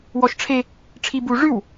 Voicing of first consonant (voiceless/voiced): voiced